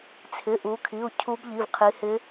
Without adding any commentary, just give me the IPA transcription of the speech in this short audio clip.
t͡sʰ ɪ˩˧˩ ʔ u˩˧ kʰ i˩˧˩ u̯ cʰ u˧˥ b ʎ i˩˧˩ v qʰ i˩˧ h ɪ˧˥

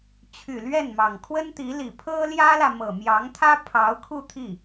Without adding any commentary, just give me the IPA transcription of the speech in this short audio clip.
t͡ɕʰ y˨˩ l ɥ ɛ˥˩ n m ɑ˨˩ ŋ kʰ w ə˥ n t̪ i˧˥ l i˨˩ pʰ ɤ˥ l j ä˥ l ä˨ m ɤ˨˩ m j ɑ˧˥ ŋ t̪ʰ ä˥ pʰ ɑ˧˥ ʊ̯ kʰ u˥˧ t̪ʰ i˥˩

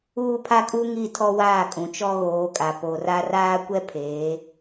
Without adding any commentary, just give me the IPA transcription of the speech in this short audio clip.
uː˦ pʰ a˦ kʼ u˦ ŋ i˦˨ tʰ ɔ˦ w aː˦˨ kʼ ũ˨ t͡ʃ ɔ˦ ɣ oː˨˦ kʼ a˨ p o˨ r a˦ r aː˦ kʷ ɛ˦ pʰ eː˨˦

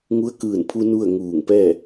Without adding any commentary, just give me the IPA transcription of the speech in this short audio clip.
ŋ u˧˥ ə̯ k ɯː˧˩ n pʰ u˧ n u˥˨ ə̯ ŋ uː˧˩ ŋ p ɛː˥˨

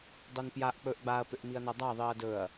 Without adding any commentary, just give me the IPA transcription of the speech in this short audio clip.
dˤ o n p j a ʔ k͡p ɵ ʔ ɡ͡b a ɐ̯ p ʏ ʔ m i ɐ̯ n ɤ dˤ a ðˤ i ɐ̯ d ɵ ɐ̯

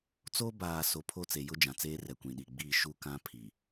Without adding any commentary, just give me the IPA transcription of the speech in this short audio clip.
t͡s o˦ b aː˨ s o˨ pʰ o˦˨ t͡s e˨ j ʊ˦ d͡ʒ ã˨ t͡s eː˦ r ɛ˨ kʷ ĩ˨ ɗ i˨ ɡ͡b iː˦˨ ʃ u˦ k ã˦ pʰ i˨

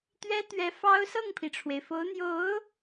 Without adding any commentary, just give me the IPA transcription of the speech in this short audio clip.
t̪ ɥ ɛ˥ t̪ ɥ ɛ˧˥ f ɑ˥ ʊ̯ s ɤ˥˩ ŋ pʰ i˩ ʈ͡ʂʰ w e˩ ɪ̯ f o˧˥ ʊ̯ n̪ j o˧˥ ʊ̯

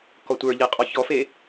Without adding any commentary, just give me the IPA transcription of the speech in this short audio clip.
k ɔ tʷ ə˞ ʎ e qʼ ɔ ç ɔ f e

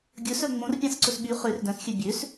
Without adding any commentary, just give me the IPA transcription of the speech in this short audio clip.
ɡʲ ɵ s œ ŋ͡m õ r pʲ ɑ̃ s ǀ ɵ s ɓ y χ ø r d œ̃ s xʲ ø bʲ ø s

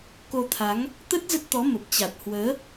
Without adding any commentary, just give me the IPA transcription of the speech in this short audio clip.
k o˧ t̪ʰ a˨˦ ŋ | t̪ ə˦˥ t̚ z ə˦˥ t̚ t̪ ɔ˨˦ m ə˨˩ p̚ t͡ɕ a˨˩ t̚ h w əː˨˦

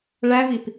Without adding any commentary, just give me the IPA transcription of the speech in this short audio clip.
ɭ æ v i p

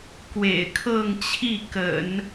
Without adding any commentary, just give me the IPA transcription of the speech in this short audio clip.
k w ḛ˨˩ ɪ̯ kʰ ɤ˥˧ ŋ t͡ɕʰ i˥˩ k ə̰˨˩˦ n

